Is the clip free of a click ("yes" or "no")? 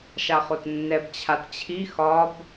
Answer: yes